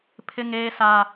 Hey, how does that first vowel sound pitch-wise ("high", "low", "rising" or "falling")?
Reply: high